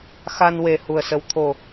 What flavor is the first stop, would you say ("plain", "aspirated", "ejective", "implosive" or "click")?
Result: aspirated